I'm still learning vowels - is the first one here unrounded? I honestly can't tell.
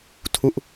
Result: no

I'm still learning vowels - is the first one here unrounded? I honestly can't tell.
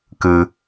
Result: yes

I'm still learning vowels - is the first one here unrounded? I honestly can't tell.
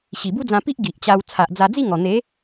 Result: yes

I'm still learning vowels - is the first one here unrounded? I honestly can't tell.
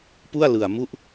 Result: no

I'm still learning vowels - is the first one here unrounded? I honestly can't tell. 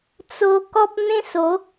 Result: no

